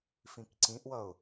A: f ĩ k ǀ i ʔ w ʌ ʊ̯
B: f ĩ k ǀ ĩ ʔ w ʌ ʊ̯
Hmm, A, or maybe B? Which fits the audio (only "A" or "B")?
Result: B